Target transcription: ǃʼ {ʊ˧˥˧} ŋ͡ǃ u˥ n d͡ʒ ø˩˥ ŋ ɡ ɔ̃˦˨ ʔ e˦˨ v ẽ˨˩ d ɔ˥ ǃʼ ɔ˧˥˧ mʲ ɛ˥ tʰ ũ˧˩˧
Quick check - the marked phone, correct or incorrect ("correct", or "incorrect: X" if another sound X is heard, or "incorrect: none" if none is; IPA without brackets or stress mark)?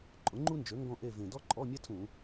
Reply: incorrect: ʊ˩˥